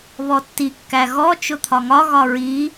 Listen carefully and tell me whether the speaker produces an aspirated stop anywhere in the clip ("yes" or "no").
yes